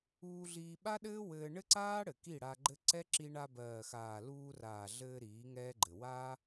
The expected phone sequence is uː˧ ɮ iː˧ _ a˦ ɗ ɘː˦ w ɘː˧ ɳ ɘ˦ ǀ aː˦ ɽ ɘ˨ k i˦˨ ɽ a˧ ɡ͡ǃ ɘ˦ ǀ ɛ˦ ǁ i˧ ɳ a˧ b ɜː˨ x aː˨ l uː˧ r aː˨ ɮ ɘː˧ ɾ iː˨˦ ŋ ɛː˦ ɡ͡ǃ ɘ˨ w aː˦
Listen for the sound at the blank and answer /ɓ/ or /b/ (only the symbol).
ɓ